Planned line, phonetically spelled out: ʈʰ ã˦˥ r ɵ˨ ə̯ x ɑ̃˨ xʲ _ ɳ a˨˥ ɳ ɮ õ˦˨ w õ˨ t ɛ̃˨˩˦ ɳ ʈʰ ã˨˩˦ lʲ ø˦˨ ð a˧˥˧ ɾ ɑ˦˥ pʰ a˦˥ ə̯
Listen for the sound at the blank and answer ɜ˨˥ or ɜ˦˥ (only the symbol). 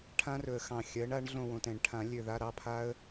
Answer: ɜ˨˥